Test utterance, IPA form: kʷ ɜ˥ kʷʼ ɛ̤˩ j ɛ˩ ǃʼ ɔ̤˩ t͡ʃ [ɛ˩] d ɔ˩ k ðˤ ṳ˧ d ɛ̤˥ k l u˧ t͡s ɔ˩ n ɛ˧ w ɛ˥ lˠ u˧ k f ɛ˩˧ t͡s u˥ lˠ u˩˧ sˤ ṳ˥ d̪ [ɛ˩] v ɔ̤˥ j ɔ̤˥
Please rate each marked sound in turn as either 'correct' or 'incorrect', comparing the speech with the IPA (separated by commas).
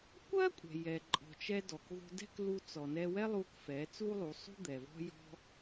incorrect, correct